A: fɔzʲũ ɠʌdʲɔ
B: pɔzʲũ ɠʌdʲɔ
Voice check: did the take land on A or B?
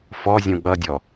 A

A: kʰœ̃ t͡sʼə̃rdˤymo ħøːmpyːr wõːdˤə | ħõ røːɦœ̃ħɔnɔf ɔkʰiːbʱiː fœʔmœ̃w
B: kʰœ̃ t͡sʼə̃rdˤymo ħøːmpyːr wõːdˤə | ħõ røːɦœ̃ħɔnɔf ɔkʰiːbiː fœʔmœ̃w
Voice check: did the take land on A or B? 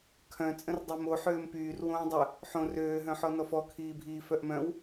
A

